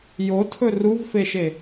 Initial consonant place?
palatal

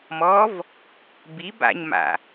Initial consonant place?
labial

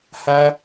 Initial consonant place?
glottal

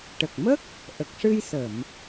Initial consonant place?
retroflex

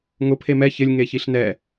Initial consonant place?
velar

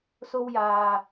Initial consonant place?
alveolar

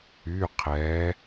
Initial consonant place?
uvular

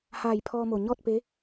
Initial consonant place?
glottal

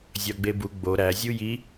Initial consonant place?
alveolar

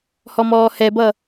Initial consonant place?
glottal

